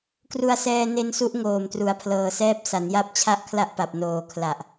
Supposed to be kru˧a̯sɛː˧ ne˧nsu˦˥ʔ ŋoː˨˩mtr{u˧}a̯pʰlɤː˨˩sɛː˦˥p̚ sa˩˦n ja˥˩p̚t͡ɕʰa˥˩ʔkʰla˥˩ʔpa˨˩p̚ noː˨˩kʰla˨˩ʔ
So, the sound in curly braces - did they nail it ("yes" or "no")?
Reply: no